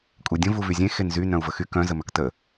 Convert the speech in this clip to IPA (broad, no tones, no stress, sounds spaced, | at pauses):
kʷʼ e dʲ ə̃ v u v y zʲ ẽ x e n z y n œ̃ u̯ v ə x y k œ̃ z ə m œ k t ə